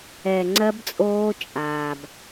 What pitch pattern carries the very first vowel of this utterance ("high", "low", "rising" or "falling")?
low